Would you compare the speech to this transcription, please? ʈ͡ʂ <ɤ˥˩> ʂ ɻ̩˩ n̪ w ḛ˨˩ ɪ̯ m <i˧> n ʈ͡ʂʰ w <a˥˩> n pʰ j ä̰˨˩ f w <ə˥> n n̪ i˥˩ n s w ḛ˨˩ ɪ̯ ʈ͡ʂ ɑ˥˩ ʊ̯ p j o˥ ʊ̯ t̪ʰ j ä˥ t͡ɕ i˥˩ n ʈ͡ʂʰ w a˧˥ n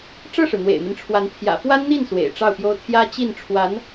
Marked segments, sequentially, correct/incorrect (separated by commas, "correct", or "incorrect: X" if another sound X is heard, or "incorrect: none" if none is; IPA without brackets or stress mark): correct, incorrect: i˦, incorrect: a˧˥, incorrect: a˥